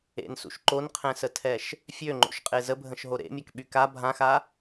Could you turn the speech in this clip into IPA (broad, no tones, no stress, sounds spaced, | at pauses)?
ḛ n s ṵ ʃ ǃ o n qʰ ɛ̃ s ə tʰ ɛ ʃ | fʲ ø ŋ͡ǃ o̰ ʃ qʼ e z ə bʱ ə̃ ʃ ɦ o ɾ ḛ mʲ a k ɓ y k a bʱ ã x a